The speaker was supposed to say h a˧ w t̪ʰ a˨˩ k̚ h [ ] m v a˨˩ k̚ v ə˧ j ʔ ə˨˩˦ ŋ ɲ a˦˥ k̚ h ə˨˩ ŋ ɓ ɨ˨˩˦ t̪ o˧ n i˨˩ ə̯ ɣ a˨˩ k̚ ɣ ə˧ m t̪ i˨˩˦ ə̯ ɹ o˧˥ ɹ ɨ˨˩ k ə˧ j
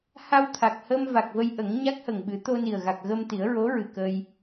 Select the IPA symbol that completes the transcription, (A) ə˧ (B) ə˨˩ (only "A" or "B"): A